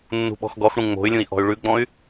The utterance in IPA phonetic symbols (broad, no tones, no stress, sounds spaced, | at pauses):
nː ṳ ɓ ɔ̤ x ɡ ɔ x ɽ ũ ŋ͡m o̤ y̯ lʲ ũ i̯ ʔ ɔ̤ y̯ ɭ ʉ ɡ͡b ɔ̃ y̯